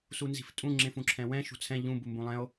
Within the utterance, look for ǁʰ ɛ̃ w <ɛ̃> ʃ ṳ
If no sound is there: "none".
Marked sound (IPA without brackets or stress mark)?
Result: ɛ̃